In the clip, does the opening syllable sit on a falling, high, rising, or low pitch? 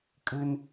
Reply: high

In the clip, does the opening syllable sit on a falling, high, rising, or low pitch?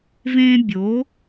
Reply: high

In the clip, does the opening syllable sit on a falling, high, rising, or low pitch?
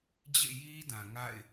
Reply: falling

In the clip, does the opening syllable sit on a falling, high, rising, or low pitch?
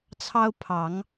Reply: high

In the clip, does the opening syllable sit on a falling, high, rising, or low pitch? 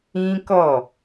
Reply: high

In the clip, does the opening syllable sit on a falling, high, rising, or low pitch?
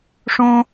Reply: high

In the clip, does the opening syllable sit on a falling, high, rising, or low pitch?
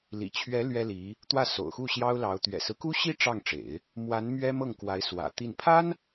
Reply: low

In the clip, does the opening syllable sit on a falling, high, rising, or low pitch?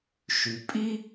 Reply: low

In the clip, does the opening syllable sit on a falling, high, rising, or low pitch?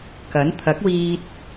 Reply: rising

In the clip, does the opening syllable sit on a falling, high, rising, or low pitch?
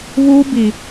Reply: high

